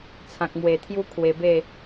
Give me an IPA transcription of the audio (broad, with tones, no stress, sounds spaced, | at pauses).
t͡sʰ ã˨ k̚ m w e˨˩ t̪ʰ j u˦ kʰ w e˧ b e˥˧